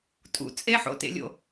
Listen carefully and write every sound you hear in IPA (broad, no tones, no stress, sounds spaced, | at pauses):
tʼ ṵ t͡sʼ e ħ o̰ t ḛ lʲ o̰